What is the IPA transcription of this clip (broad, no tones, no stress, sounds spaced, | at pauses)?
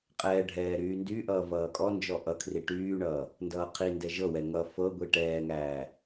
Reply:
qʼ ɛː ɖʱ ɛː ɾ yː n d y ʔ ʌː v ʌː kʼ ɔ n d͡ʒ ɔ ʔ ʌ kʰ r i ʈ yː ɳ ʌː | n d ʌː qʰ i n d ɛ ʒ ɤ w ɛ ŋ ʌ f ɤ ɡʷ i ʈ ɛː ŋ æː